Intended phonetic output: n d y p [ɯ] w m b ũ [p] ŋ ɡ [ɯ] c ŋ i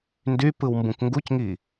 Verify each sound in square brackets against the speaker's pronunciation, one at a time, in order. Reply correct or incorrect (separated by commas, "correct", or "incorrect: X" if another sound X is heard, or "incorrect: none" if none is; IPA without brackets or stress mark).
correct, incorrect: k, incorrect: u